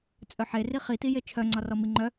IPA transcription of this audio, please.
t͡sʼœħeri χi tijet͡ʃʰœŋ͡ǀɒ rɔmiŋ͡ǃœ

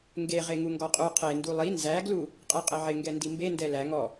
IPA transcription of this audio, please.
ŋɡe ʁeŋuŋɡɔqʼu qʰe ndulˠi nzæ ɡlu | qʼeqʼɘʕɪ ŋɡɛndimbe ndɛlæ ŋɔ

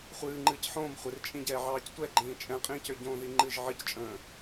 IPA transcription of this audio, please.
χʷɨːŋ͡ǃɨːc ħõːm χʷɪrt͡ʃʼĩɟɛː ʕɑːctʷɛɡ͡ǃĩː t͡ʃʼɛ̃qʼĩːcø ɟõːðiŋ͡ǃɨʒ ʕɨct͡ʃʼə̃ː

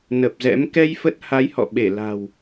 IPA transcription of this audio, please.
nə˨˩p̚ zɛ̰˧˥m kɛ˧j fə˦˥t̚ ha˨˦jhɔ̰˧˨ ɓe˧˩la̤˨˩w

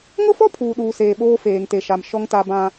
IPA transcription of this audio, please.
ŋʊ˦fɔ˦ pʰuː˨ɗuː˨ seː˨ɓoː˦ feː˨ŋte˨ʃa˨m ʃɔ˦ŋta˦bã˦

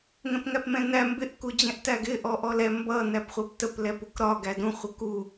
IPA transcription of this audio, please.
ŋɛ̃pŋæpmɛ̃næ mbɪʔ kud͡ʑɛ̃ʔtæɡɪ ʔɔʔɔlɛ mbʌ næpχʷæptəp lɛpukɾɒ ɡædũ χʷəku

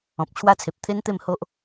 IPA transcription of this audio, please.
ɔ̃˨p̚t͡ɕʰwa˦t͡sʰe˨p̚ t̪ʰe˦nt̪e˥˧m ho˦ʔ

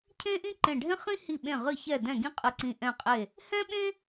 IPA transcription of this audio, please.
cʰẽ˥ʔĩ˥ǃẽ˧˩ɖʱẽ˥ χĩ˥ hi˧˩ɓẽ˧˩ʁɨ˧˩ çɛ˧˩dɛ̃˧˩ ɡĩ˥qʼɨ˧˩ǀĩ˧˩ ʔɛ̃˧˩qʼe˧˩ | hɛ̃˥ɓẽ˥

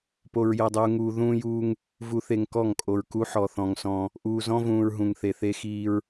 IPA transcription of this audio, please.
po˨ɹjɤ˨dˤuː˨ŋuː˨ ðũː˦juː˦ŋ | vu˨θe˨ŋ kɔ˦˨ŋkʼo˨ɹ ku˦ħɔ˨θɔ̃˨ŋ sɔ̃˦ | ʔuː˨zɔ̃˦vũː˨ɹ ɦũ˨ŋθe˨ θe˦xiː˦ɹ

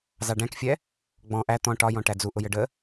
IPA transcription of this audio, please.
zɑɖæ̃kfʲɛ | ɡ͡bɔ̃ ʔæ t̪ɔ̃ ʈɒjɔ̃ ʈæd͡zu ʔʊjəɖə

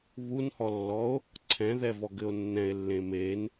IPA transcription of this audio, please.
βunhɔlːɔo̯ | ǀʰɛ̃ðɛ vɔɡɘo̯nːɛ̃e̯lːẽ men

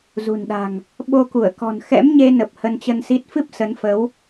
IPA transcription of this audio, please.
zṳ˨˩nɗa̤˨˩ŋ | ɓo˧ku˧˩ə̯kɔ̤˨˩n xɛ̰˧˥mɲe˧nə˨˩p̚ hə˧nt͡ɕə˧nsi˦˥t̚ fɨ˦˥p̚ sə˨˦nfə˨˦w

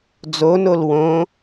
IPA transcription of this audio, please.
d͡zonol wõ

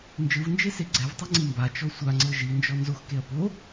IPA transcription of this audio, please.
nd͡ʒɯvnd͡ʒese ɡ͡ǀɛvtˤɛŋ͡ǀi mbat͡ʃɔ sʷaŋ͡ǀɤ ʒind͡ʒɔ nzoxkeɐ̯ po

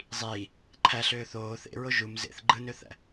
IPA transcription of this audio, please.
zˤiː | ǃʰæɬøː θoː θḛɹo ʒum zḛθ ɡ͡ǃɯnøθæ̰

